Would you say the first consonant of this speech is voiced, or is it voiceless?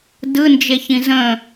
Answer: voiced